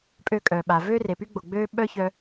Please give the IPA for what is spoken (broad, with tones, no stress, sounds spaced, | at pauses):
pʼ ø˧ kʼ œː˩ ɓ a˩ v øː˥ r e˩ p y˥ ɡ͡b o˩ ɡ͡b øː˥ ɓ œ˥ ç œ˧